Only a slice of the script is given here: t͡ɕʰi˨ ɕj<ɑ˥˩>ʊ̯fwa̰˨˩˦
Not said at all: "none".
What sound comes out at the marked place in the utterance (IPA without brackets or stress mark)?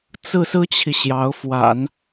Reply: ɑ˧˥